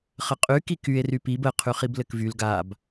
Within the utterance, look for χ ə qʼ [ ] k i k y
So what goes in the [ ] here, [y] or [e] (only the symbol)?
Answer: y